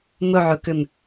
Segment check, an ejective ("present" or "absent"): absent